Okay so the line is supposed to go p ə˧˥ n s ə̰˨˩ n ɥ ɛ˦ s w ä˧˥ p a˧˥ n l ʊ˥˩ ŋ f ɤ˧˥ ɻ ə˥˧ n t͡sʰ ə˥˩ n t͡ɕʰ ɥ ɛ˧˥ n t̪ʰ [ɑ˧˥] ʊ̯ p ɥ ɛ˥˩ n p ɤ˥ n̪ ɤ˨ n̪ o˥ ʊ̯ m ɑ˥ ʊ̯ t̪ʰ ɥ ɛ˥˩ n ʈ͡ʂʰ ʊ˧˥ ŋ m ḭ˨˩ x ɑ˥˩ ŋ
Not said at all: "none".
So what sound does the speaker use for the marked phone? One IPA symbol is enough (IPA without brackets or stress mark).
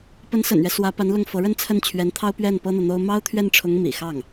ɑ˥